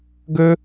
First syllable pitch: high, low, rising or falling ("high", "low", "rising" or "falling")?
high